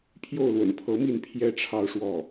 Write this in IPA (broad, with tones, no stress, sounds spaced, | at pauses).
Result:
pʰ j o˥˩ ʊ̯ l w ə̰˨˩ n pʰ ɤ˧˥ m i˥˩ n pʰ j ɛ˥ ʈ͡ʂʰ ɑ˥˧ ʊ̯ ʂ w ɔ˥˩